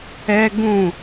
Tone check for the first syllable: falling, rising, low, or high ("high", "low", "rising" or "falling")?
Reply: high